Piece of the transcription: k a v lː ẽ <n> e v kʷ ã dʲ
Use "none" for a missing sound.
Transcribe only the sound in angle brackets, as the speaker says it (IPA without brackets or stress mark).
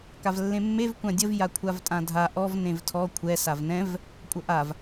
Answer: mː